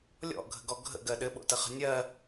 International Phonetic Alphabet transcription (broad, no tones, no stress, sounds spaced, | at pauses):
lʲ ɔ̰ ɡʱ ə̤ ɡ ɔ ɡʱ ə̰ ɡ ɜ ɗ ɘ ɓ o̰ t ə χ ə̤ nʲ ɜ